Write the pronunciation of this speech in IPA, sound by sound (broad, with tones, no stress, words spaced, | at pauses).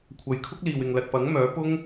kʷʰɐ˨jkʰʊ˥k̚ liː˨wɪ˨ŋlɐ˨t̚pɐ˨˥ŋ mœː˨˥ pʊ˥ŋ